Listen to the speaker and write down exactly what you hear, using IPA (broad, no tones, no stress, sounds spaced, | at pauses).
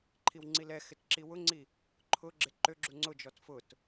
ǃʰ i w ŋ͡ǀ i l ɛ x ɪ t ǁ i w ʊ ŋ͡ǀ i | ǃʰ ʊ ɡ͡ǁ ɪ ǃ ø ɡ͡ǁ u ŋ͡ǀ ʊ d͡ʒ ɔ t f ʊ t